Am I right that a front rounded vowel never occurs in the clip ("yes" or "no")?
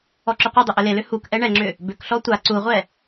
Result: no